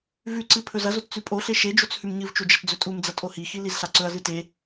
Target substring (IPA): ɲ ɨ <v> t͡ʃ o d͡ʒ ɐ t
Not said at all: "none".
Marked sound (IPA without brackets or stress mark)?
v